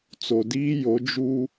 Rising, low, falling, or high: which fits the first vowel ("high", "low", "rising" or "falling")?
low